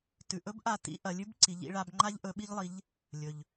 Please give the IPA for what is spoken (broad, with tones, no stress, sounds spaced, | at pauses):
t ʉ˩ ʔ ɵ˧˥ b ʔ a˧ t ḭ˧˥ ʔ ɐ˩˧ lʲ ʉ˥ b ǀ i˩˧ ʎ ḭ˩˧ ɭ a˧ b ŋ͡ǃ a˥ ʎ ʔ ɵ˧˥ ɓ i˥ ʎ lˠ i˧˥ ʎ | lʲ ɵ˩ ʎ